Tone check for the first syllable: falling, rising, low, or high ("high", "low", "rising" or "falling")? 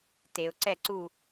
low